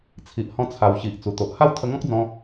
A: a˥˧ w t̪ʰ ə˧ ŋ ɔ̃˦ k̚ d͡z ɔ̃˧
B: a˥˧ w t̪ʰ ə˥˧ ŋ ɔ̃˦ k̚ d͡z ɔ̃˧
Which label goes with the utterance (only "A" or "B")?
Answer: A